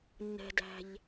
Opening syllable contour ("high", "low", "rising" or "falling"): low